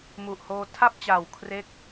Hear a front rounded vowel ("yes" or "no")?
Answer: no